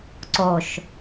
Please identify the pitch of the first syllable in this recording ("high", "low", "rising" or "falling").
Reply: low